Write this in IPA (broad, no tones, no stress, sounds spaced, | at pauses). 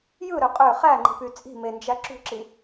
j ɯ ɾ ø qʼ ø χ æ ŋ͡ǃ i̤ p y t͡sʼ i̤ m e n d͡ʒ æ ǁ ṳ ǁ i